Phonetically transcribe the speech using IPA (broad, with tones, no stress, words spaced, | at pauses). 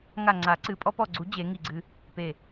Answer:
ŋa˧˩ŋ͡ǀa˨˩˦ǀɨ˨˩˦ pʼɔ˧pɔ˧˩ɡ͡ǀu˨˩˦ d͡ʑe˨˩˦ŋi˧˩ɡ͡ǀɨ˧ | pe˧˩